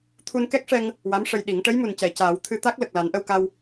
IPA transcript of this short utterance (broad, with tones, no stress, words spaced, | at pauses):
t̪ʰu˧nkɛ˦˥k̚ʂɛ˧ŋ | wa˧˥mʂə˧jɗi˨˩˦ŋ ʈə˧˥jmu˨˩ncɛ˨˩˨ caː˨˩˦w t̪ʰɨ˧ t̪a˦˥k̚ lə˨˩k̚la˨˩˦nʔə˧wka˧w